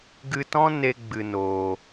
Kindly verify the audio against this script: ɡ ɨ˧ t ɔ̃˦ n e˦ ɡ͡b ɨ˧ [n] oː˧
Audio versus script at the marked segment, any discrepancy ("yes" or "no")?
no